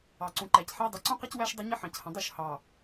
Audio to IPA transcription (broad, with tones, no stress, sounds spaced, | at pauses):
ɑ˨ ǀ ũ˨ ǃ æ˨ c ħ æ˦ dˤ ɪ˨˦ ǀ ũ˦ q ʌ˦ c w æ˦ ʃ dˤ ə˦ ɲ ɪ˦ ħ ɑ̃˨ c h ə̃˨ dˤ u˦˨ ʃ h ɑ˨